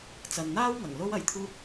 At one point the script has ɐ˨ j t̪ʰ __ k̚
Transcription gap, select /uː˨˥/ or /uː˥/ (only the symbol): uː˥